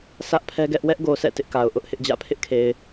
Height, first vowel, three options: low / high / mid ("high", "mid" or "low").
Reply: low